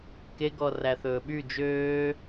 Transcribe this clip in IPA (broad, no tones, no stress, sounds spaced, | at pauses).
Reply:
k e ɡ ɔ r æ θ ɵː ɓ y d͡ʒ øː